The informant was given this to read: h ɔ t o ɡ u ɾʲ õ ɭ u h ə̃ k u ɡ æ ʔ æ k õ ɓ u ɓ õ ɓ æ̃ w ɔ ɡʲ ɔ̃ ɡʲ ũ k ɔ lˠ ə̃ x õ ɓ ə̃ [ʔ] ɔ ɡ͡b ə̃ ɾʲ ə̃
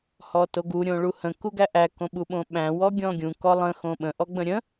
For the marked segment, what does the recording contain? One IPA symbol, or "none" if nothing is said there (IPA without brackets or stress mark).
ʔ